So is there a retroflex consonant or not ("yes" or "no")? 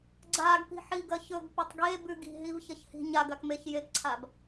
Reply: no